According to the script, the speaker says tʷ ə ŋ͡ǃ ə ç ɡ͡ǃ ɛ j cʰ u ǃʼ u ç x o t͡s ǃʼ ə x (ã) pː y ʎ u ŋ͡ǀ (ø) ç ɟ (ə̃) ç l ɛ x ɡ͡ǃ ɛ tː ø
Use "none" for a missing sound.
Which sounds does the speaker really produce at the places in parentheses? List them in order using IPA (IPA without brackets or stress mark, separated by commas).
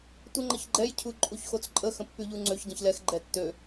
ə̃, ø, ə̃